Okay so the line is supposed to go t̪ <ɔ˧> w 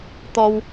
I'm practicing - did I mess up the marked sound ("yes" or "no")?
no